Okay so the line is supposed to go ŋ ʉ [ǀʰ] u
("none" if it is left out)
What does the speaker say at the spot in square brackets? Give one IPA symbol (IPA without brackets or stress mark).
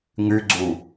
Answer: ɡ͡ǀ